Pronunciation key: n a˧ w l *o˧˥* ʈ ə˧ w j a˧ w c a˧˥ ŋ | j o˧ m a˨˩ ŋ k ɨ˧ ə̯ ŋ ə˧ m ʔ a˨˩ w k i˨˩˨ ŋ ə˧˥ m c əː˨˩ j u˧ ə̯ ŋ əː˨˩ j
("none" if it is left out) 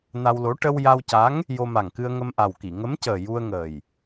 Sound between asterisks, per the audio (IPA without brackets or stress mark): o˧˥